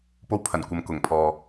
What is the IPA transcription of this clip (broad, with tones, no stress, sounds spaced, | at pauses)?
p o˧ w pʰ ɐ˨˩ n kʷ ɐ˨ m k ʊ˨˩ ŋ pʰ ɔː˨